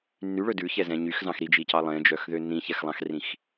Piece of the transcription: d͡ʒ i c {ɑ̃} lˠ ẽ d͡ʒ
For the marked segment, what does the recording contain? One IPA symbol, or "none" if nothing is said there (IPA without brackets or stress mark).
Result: ɑ